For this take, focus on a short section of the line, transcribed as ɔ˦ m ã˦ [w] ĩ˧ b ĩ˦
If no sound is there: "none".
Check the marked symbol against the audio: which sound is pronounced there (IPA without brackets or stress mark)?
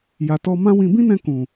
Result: w